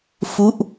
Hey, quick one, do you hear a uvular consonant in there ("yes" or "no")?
no